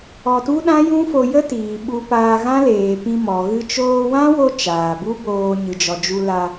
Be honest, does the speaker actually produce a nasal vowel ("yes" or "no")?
yes